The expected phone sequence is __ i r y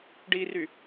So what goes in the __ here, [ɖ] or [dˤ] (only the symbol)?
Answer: ɖ